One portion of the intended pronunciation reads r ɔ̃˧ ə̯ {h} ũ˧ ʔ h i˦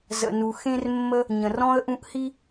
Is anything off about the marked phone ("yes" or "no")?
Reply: yes